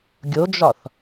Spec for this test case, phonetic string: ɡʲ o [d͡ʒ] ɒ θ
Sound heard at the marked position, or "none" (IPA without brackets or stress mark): d͡ʒ